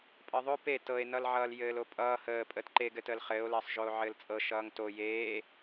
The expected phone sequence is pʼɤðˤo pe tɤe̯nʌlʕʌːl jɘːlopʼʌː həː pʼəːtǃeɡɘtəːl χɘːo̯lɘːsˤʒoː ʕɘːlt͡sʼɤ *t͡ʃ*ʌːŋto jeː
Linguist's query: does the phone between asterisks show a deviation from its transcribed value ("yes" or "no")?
yes